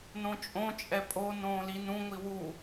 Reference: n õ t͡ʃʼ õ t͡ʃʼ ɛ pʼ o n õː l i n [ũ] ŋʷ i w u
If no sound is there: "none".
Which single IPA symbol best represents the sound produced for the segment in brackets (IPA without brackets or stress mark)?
ũ